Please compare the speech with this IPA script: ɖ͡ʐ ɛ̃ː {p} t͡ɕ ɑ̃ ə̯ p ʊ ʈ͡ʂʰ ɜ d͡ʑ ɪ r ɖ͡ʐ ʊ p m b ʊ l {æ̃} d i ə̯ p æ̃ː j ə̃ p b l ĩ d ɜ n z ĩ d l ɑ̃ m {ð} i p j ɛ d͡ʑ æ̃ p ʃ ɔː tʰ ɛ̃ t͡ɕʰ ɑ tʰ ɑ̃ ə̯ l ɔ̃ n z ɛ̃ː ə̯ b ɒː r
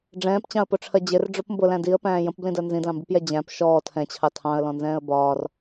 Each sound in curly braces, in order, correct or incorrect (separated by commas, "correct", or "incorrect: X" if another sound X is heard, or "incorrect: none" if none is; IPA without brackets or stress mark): correct, correct, incorrect: b